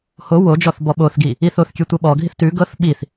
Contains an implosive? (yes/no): yes